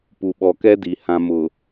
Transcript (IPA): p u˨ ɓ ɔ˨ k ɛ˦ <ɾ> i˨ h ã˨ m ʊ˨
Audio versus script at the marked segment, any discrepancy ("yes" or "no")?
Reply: yes